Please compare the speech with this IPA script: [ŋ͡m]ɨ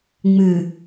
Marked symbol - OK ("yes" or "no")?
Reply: yes